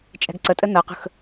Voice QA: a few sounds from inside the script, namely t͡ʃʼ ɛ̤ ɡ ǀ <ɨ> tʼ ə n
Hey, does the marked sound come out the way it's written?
no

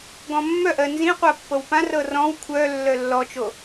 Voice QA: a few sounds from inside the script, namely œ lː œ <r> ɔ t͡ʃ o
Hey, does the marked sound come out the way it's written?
no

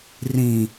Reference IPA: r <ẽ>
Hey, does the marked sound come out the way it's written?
no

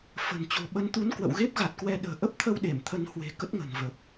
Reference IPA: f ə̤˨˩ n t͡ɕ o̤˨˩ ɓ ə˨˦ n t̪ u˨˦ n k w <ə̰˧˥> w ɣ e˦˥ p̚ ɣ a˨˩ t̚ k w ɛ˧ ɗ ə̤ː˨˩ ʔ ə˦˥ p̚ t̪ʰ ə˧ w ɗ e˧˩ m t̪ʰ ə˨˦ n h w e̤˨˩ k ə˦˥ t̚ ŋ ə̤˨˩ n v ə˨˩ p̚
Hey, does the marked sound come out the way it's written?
no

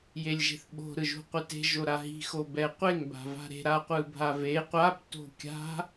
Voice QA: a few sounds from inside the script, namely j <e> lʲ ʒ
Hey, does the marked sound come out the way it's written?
yes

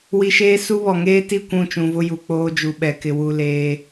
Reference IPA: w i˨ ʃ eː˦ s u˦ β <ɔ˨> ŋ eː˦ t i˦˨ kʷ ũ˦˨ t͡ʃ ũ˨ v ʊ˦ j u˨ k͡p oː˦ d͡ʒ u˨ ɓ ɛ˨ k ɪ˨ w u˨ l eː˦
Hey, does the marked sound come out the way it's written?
yes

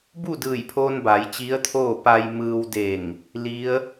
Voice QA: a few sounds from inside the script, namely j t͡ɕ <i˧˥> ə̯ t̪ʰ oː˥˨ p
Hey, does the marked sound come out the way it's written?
yes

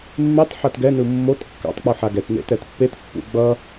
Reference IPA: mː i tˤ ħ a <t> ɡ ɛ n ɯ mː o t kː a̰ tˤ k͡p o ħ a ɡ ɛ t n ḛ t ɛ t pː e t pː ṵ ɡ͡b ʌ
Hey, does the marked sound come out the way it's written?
yes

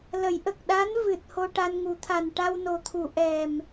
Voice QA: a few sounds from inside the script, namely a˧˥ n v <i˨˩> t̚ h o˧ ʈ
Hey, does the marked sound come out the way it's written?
no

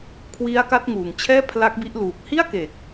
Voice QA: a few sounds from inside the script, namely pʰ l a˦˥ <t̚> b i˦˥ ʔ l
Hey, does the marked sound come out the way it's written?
no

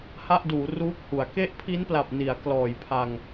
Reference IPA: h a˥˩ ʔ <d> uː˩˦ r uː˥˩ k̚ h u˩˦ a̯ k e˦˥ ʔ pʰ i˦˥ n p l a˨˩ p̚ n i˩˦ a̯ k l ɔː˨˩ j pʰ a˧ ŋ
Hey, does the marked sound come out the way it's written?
yes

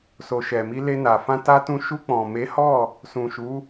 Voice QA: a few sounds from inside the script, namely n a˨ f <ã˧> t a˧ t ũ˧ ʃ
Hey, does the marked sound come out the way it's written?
yes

